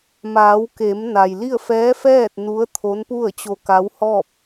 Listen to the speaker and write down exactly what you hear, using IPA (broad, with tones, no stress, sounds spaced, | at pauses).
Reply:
m aː˩˧ w k e˩˧ m n a˩ j l i˥˨ ə̯ f ɛː˧˥ f ɛː˥˨ t̚ n u˧˥ ə̯ t̪ʰ o˧˥ n p u˥˨ ə̯ t͡ɕ o˧ k a˧˥ w h ɔː˥˨ p̚